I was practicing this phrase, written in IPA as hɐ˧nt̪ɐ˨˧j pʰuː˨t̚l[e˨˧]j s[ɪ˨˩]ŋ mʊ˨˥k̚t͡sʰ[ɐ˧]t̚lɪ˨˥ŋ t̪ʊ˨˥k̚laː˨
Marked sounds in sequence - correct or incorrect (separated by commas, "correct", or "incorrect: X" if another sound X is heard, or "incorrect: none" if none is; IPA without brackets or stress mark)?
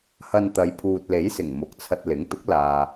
incorrect: e˨˥, correct, correct